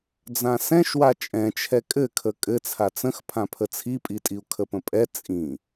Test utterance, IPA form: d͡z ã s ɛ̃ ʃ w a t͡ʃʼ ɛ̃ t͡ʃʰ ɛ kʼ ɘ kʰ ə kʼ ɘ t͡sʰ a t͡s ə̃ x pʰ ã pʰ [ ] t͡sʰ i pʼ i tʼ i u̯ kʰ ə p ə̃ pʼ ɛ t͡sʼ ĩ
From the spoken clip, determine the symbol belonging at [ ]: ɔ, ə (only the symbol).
ə